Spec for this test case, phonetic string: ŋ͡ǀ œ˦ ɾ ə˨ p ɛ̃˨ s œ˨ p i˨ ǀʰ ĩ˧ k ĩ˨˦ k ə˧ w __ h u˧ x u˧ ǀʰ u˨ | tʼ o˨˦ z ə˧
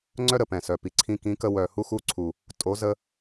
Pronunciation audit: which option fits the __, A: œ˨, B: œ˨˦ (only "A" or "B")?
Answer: A